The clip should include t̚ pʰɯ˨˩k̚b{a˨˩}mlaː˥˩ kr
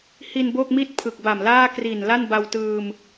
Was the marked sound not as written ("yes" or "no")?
no